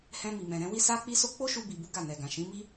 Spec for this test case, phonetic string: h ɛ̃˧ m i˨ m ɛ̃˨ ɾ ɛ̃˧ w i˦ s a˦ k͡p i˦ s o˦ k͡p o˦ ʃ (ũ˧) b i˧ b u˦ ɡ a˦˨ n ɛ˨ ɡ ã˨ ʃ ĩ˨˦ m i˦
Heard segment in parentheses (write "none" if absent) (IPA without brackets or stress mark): u˧